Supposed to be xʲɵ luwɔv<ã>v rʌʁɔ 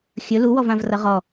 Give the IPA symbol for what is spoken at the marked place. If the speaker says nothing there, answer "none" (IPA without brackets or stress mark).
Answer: ã